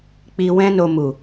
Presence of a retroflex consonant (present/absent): absent